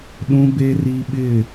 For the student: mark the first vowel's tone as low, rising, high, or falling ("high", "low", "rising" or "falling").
high